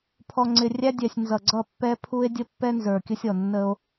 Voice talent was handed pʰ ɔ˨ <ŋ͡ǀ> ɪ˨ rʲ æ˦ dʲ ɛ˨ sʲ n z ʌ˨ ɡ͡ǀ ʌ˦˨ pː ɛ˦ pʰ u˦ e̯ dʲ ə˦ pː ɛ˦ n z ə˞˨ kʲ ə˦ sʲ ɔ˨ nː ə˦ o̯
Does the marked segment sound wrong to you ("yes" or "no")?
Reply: no